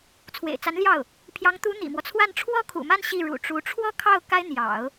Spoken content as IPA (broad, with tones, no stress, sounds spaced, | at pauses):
t͡sʰ w ḛ˨˩ ɪ̯ t͡s a˧˥ n l j ɑ˥˩ ʊ̯ | pʰ j ɑ˧˥ ŋ t̪ u˧˥ n̪ ḭ˨˩ m w ɔ˦ t͡sʰ w a˥˩ n ʈ͡ʂʰ w ɔ˥ kʰ ṵ˨˩ m a˥˧ n ɕ i˥˩ ɻ ṵ˨˩ ʈ͡ʂ u˧˥ ʈ͡ʂʰ w ɔ˥ kʰ ɑ˥˩ ʊ̯ k a˥ ɪ̯ n̪ j ɑ̰˨˩˦ ʊ̯